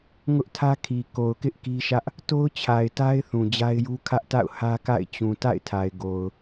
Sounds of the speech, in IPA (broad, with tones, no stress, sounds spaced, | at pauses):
ŋ ʊ˦ ʔ tʰ ä˦ kʰ i˨ k o˨ ʊ̯ k ɪ˦ ʔ k i˦ ʃ ä˦ ʔ | t o˦ ʊ̯ t͡ɕʰ a˨ ɪ̯ t a˦ ɪ̯ θ ũ˨ d͡ʑ a˦ ɪ̯ j u˦ kʰ ä˦ ʔ t a̰˦˨ ʊ̯ h ä˦ k a̰˦˨ ɪ̯ t͡ɕ ũ˨ t a̰˦˨ ɪ̯ tʰ a˨ ɪ̯ ɡ o˨ ʊ̯